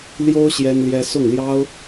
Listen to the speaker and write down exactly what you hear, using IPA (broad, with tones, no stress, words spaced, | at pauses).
ljo˥ʊ̯ ɕjɛ˥nljɛ˥ sʊ˥˩ŋljɑ˥ʊ̯